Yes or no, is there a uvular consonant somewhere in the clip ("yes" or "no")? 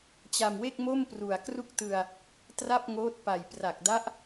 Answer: no